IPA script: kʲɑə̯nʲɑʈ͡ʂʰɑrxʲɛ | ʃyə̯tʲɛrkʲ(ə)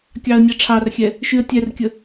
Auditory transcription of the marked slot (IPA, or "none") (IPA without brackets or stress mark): ə